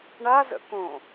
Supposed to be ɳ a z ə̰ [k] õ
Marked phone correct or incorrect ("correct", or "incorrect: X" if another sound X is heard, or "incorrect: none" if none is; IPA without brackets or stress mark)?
correct